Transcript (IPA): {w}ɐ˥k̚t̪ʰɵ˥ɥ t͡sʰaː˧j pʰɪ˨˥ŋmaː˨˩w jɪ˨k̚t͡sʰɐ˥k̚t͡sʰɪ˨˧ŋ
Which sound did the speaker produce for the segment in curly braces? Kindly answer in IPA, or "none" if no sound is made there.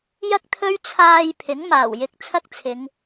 j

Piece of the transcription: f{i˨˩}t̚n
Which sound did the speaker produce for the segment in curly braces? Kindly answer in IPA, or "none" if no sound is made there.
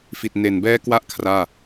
i˨˩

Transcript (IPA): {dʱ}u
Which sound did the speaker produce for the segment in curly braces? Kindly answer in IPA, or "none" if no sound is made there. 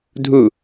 dʱ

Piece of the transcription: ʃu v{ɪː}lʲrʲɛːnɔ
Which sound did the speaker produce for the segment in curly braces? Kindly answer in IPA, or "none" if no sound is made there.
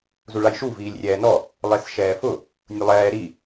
iː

